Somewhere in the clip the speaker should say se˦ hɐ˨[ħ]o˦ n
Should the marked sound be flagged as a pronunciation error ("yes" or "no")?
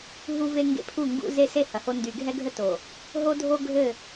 yes